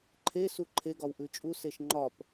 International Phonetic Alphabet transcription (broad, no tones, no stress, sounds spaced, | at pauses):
ǃʰ e s u ǃʰ e ɡ ɒ w ʔ ʉ t͡ʃʼ u s e ʃ ŋ͡ǃ ɒ p